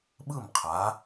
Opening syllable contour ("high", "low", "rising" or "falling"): falling